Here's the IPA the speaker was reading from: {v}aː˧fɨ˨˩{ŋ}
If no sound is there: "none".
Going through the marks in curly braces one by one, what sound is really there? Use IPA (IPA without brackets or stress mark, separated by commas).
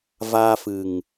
v, ŋ